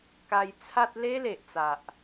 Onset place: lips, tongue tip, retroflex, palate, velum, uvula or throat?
velum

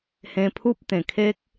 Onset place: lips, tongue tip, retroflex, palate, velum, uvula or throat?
throat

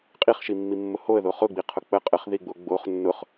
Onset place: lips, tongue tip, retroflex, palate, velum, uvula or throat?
uvula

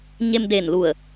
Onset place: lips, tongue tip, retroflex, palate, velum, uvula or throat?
palate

